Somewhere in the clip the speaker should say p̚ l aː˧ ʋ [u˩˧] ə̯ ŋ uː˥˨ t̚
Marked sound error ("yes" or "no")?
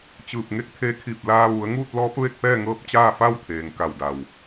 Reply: no